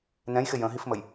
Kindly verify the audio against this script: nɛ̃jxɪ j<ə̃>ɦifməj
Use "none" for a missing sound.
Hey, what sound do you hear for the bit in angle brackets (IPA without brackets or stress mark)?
ə̃